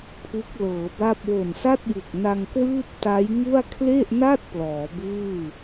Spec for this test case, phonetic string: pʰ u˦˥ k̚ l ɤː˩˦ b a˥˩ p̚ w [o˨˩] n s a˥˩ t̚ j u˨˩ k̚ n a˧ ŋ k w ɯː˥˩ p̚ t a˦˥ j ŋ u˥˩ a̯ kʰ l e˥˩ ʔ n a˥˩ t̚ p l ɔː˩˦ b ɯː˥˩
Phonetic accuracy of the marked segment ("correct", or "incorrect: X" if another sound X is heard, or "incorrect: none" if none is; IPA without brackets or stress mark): correct